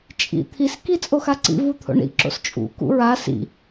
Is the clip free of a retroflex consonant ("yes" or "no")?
no